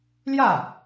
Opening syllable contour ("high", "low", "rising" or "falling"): falling